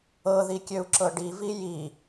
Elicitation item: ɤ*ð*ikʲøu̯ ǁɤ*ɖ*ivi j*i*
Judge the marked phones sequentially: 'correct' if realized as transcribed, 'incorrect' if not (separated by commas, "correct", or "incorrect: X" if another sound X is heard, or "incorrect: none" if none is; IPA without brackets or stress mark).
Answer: correct, correct, correct